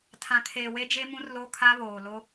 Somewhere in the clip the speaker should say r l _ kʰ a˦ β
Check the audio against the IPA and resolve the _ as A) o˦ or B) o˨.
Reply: A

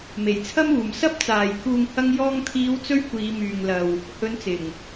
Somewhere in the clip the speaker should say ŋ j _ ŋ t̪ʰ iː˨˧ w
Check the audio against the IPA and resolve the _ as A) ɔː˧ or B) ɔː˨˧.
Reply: A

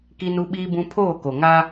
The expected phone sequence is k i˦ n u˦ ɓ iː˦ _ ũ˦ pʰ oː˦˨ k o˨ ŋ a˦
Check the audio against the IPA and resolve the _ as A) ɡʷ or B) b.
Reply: B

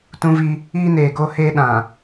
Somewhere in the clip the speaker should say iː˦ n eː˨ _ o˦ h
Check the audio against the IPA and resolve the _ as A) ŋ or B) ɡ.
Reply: B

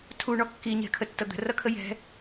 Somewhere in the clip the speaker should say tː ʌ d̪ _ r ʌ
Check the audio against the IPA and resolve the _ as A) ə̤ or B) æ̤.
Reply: A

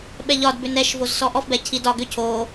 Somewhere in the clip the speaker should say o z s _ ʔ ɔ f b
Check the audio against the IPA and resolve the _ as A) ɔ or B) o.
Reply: A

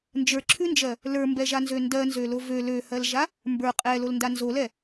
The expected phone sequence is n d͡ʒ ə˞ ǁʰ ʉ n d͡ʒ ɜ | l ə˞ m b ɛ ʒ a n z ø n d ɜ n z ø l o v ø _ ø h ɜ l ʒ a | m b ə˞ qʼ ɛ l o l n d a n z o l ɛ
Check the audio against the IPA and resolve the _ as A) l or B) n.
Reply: A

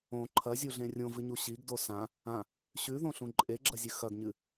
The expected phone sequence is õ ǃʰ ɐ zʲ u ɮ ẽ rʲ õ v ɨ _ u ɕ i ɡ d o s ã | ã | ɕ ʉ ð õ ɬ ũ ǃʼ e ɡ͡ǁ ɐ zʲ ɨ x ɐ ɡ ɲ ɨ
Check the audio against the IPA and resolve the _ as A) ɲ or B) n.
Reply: A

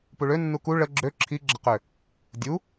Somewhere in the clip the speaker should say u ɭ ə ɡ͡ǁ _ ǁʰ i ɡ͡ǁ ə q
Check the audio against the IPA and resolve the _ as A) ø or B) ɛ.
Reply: A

